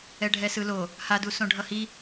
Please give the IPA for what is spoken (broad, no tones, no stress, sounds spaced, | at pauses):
ɛ ɖʱ ɛ s ɯ l o | h a d u s õ ɖʱ ʌ h i